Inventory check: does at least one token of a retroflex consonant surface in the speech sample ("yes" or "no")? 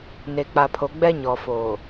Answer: no